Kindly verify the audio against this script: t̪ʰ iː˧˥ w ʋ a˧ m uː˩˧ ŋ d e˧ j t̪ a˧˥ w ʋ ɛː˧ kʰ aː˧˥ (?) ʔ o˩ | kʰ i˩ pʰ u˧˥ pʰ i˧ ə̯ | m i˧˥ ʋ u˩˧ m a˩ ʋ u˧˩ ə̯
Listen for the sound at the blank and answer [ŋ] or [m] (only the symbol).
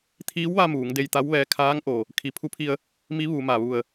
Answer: ŋ